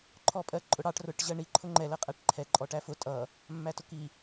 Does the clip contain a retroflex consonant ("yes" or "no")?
yes